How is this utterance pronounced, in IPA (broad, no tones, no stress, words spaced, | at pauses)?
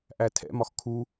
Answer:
ʔætʰɛ̰mɒx kʰu